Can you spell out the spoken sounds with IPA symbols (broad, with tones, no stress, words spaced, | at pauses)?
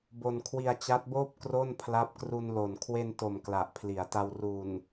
bo˧nkʰwi˧a̯ t͡ɕa˦˥t̚boː˥˩p̚ kro˥˩n pʰla˦˥p̚ kru˧nlo˨˩n kʰwe˧nto˨˩m kla˨˩ʔpʰli˩˦a̯ta˧w ru˨˩n